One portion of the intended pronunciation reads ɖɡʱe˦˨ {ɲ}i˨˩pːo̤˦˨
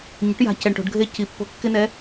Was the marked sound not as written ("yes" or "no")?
yes